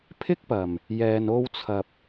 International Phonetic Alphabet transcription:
pʰ ɪ˥ k̚ p ɐ˨˩ m | j ɛː˨ n o˧ w t͡sʰ ɐ˨ p̚

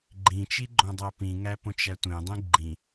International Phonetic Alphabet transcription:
ɡ͡ǃ ĩ t͡ʃ i ɡ͡ǃ õ dˤ æ p ĩ ŋ æ p õ t͡ʃ æ tʷ ẽ dˤ ĩ ɡ͡ǃ ĩ

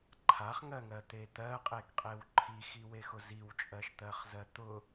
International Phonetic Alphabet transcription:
ǃʰ a χ ŋ ɜ ŋ ɜ t̪ e t̪ ɜ qʼ e ɡ qʼ e w ǃʰ i x i w e x ʊ z i w t͡ʃʼ ɜ ʃ t̪ ɜ χ z ɜ t̪ ʊ

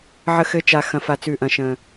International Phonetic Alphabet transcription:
ʕ ə˩˧ x ɘ˩˧ t͡ʃ a˩ x ɐ̃˩ f a˩ t͡s ʉ˩ ʔ ɐ̃˩ ʃ ə̃˩

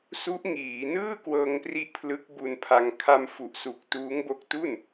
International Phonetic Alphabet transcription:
s u˦˥ ʔ ŋ iː˩˦ n ɯː˥˩ k w ɤː˧ ŋ p r i˦˥ ʔ pʰ l ɯ˦˥ k̚ b u˧ n pʰ a˧ ŋ kʰ a˧ m f u˨˩ ʔ s u˨˩ k̚ t uː˦˥ ŋ b o˦˥ k̚ t u˥˩ n

